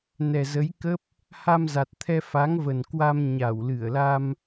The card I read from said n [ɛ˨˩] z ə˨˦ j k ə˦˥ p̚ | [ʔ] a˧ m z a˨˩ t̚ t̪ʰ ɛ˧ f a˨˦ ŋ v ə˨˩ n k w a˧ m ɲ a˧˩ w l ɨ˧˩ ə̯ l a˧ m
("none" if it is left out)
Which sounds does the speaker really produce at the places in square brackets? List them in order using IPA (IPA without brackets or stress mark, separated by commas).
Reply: ɛ˨˩, h